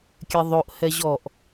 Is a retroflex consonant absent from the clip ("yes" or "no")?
yes